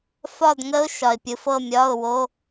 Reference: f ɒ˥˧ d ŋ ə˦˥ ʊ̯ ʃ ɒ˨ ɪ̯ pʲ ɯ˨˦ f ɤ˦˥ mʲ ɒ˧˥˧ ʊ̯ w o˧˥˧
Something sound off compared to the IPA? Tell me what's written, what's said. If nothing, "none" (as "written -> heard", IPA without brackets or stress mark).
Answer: ɤ˦˥ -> ɤ˥˧